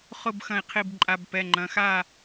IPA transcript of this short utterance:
χʊ˥˨b xɐ̃˧˩i̯qʰi˧˩bǃʼa˩˧˩b pɛ˩˧˩ ŋ͡ǃɐ̃˩˧˩xa˥˨

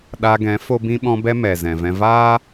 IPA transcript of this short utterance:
ɗa˧ɡɛ̃˨˦ fo˦bĩ˦ ɓɔ̃˧bɛ˧ mɛ˨ zɛ̃˨vɛ̃˧ vaː˦

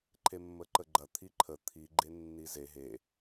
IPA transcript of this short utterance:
ǃʰemːəǃəɡ͡ǃɐ t̪ʰiǃʰə t̪ʰi ɡ͡ǃenːize ɦe

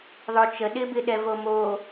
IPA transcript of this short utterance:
ðˤot͡ʃə ɗɪbɪɗɛvo mo

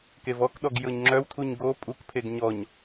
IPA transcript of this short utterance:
kevɔkɗɔɡ jɤɲŋ͡ǁœwtʰuɲ ɡo pʼukpʰeɡ ɲɔɲ

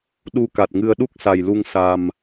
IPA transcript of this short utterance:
ɗu˧ka˨˩t̚ŋɨ˧ə̯ ɗu˦˥k̚sa˨˩jlu˧ŋ sa˨˩m

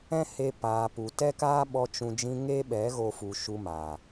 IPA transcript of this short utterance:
ɛ̃˦ he˧ paː˨ pu˨tɛ˦kaː˦ɓɔ˧ t͡ʃũ˧ d͡ʒĩ˧ ŋe˦ ɓɛ˨˦ ɣo˦fu˧ ʃu˧maː˨

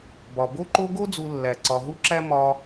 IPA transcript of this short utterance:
bɒ˩bo˦ǃo˦ ɡo˦d͡zu˨lːæ˩ ǀɒ˨ɦu˦ǁæ˦ mɒ˨

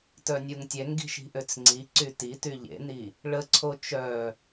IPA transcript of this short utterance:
tœnʲuŋtʲɛŋɡi̤ʃ i̤ʔøt͡sŋ͡ǀiǀy tity ʎḛni | ɭəǀʰo t͡ʃœ

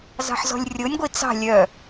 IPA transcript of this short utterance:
zɑ̤ħzɔ̤lʲrʲonʲɡʷi t͡sɑ̤ lʲœ

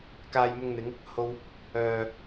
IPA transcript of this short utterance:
kaː˧jmʊ˧ŋn̪ɪ˨˧ŋ | ho˧w | œː˨

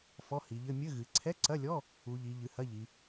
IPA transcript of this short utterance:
fɔ˧˥˧hi˩˧ʎɘ˧˥˧ mʲɘ˧˥˧ɣɨ˩˧ ǀʰɛ˧˥˧ǀɐ˧˥˧lʲɔ˧˥˧ | u˩˧ʎi˩˧ ʎɨ˩˧hɐ˧˥˧ʎi˩˧

